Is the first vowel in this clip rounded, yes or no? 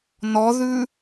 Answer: yes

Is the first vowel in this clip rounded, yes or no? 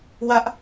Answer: no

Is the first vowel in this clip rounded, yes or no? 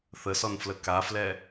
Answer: no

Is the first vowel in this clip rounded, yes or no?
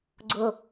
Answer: yes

